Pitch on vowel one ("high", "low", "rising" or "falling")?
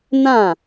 falling